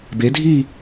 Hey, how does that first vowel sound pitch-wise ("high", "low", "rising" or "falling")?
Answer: rising